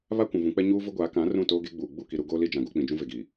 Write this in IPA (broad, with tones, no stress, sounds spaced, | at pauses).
β a˦ kʷ ũ˨ v ũ˨˦ k͡p ɛ˦ ɲ uː˦ v ʊ˦ ɡʷ aː˨˦ k ã˨˦ r ũ˦˨ t oː˦ ɡ e˦ ɡ͡b uː˨ ɡ͡b u˦˨ k i˨ ɾ u˦ ɡ oː˦ l i˦ d͡ʒ ã˨ ɡ o˨˦ k͡p ĩ˨ d͡ʒ ũ˦ v e˨ ɡ iː˨